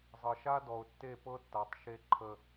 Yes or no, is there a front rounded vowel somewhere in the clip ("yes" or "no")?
no